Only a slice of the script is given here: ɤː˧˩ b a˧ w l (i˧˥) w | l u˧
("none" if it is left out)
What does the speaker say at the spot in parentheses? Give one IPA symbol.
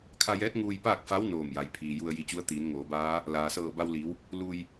i˩˧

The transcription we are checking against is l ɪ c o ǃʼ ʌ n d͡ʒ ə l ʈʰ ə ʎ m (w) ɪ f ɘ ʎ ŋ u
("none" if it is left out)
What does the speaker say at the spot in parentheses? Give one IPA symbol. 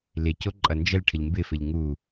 b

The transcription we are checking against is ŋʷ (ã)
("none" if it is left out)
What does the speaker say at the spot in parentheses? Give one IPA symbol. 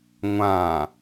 ã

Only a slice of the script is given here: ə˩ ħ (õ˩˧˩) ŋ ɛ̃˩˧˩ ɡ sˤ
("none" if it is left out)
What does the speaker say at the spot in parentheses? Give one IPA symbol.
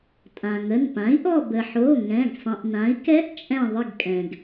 o˩˧˩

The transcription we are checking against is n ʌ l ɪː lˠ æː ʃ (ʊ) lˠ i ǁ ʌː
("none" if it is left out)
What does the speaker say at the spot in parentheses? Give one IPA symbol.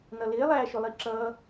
ʊ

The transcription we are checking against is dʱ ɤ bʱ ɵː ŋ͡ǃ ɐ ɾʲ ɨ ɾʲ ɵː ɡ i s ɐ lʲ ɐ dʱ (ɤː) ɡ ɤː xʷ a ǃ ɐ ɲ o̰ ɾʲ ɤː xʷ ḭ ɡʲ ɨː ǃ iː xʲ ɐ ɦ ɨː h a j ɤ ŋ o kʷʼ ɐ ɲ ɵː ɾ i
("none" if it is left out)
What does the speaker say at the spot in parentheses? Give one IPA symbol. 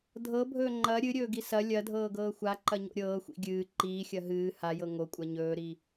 ɤː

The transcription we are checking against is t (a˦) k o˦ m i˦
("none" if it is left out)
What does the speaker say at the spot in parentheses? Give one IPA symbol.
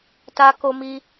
a˦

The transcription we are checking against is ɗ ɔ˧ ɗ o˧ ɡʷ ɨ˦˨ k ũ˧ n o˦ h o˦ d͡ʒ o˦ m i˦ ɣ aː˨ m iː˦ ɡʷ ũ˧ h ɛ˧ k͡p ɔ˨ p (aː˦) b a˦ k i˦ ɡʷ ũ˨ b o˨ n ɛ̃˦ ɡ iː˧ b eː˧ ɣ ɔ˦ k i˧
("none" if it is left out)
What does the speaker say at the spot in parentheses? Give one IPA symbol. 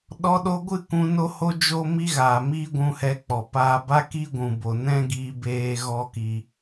aː˧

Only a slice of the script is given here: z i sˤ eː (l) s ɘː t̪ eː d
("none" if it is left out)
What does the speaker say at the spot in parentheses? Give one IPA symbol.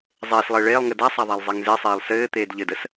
lˠ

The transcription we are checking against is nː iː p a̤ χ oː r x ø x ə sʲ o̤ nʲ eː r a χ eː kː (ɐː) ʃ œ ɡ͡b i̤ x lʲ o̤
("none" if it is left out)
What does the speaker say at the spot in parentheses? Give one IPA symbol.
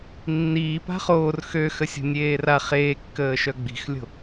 əː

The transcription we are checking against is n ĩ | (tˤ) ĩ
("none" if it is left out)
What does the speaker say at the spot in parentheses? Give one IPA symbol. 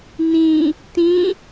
t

